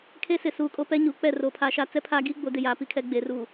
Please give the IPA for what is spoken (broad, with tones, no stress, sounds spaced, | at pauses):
kʰ e˦ s ɪ˨ s uː˨ kʼ o˦ p ɛ˦ ɲ uː˨ k͡p ɛ˦˨ r o˨ pʰ a˨ ʃ a˦ t͡s ɛ˦ pʰ a˦ ɡ i˦ ɡ͡b o˨˦ d ɪ˨ j aː˨ p i˦ kʰ ɛ˦ ɡ͡b e˨ r u˨